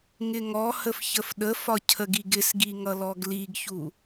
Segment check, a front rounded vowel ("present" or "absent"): absent